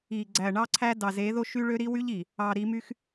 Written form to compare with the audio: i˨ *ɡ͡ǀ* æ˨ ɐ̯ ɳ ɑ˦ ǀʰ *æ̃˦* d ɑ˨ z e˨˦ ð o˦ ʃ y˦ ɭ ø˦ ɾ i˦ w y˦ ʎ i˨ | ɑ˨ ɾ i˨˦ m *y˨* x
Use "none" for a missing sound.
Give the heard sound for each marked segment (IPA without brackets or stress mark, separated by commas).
ɡ͡ǀ, æ˦, y˦